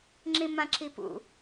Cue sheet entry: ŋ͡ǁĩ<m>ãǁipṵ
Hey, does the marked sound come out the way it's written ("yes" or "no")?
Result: yes